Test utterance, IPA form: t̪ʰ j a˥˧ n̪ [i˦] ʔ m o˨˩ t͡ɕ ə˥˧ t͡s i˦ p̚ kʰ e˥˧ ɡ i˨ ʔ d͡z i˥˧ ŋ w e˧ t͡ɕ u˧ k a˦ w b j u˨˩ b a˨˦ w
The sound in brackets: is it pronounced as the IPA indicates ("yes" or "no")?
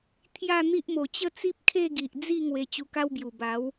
yes